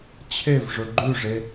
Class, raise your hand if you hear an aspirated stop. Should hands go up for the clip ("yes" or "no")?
yes